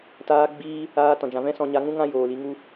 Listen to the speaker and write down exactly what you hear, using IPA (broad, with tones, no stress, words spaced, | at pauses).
taː˦ɡ͡bi˦ | aː˧ tɔ̃˨d͡ʒã˨vɛ̃˦sɔ̃˧ ɲa˧ŋũ˦ŋã˦ joː˨li˧ŋu˦